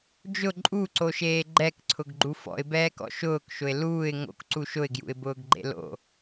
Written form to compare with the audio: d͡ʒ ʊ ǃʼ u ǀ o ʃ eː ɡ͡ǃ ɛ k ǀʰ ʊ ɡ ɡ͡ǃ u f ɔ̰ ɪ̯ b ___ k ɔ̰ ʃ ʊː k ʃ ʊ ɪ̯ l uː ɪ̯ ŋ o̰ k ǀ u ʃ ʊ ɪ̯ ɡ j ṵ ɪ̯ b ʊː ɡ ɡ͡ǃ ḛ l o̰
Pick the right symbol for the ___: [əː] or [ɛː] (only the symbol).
ɛː